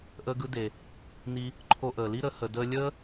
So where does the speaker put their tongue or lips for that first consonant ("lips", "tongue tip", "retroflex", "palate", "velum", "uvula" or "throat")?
throat